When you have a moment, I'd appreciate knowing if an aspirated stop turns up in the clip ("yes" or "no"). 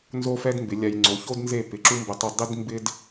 no